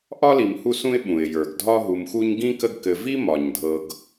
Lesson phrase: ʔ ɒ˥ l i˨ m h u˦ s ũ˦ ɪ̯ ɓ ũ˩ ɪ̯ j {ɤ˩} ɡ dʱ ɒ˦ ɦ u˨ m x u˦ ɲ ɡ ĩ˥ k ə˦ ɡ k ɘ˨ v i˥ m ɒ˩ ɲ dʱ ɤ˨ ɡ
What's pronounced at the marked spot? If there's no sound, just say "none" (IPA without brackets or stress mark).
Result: ə˞˩